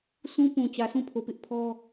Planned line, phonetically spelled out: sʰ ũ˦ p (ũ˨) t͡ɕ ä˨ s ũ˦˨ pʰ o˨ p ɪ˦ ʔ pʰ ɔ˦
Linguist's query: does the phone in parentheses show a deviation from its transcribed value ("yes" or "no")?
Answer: no